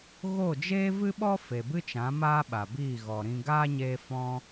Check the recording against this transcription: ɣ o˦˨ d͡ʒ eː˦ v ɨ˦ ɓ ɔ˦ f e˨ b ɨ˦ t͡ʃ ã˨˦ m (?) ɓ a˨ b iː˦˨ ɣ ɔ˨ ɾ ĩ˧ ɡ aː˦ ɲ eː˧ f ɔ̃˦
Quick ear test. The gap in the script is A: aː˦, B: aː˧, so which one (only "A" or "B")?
A